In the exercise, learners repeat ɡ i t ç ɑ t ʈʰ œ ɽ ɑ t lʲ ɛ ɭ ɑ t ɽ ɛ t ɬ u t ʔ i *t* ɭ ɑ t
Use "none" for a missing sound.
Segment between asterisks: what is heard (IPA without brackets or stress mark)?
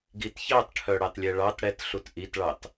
t